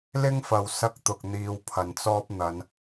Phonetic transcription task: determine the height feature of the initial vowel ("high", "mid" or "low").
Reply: high